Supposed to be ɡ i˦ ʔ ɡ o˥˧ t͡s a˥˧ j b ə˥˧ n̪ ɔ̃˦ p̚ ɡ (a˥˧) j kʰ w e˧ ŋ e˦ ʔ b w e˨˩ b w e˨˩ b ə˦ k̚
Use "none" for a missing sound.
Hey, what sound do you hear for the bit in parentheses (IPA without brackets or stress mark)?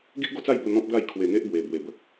a˥˧